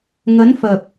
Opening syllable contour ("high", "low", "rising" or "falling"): rising